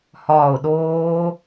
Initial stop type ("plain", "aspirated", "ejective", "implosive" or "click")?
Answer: implosive